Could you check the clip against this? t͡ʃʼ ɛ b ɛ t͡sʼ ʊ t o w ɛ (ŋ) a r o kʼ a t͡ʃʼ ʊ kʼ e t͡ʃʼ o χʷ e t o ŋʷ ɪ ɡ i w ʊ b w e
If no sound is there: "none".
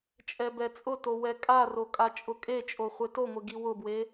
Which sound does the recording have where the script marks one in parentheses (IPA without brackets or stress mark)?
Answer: kʼ